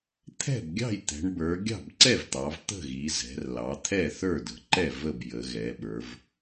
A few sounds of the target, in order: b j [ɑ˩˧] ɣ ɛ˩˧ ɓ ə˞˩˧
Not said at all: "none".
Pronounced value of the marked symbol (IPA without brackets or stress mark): ə˩˧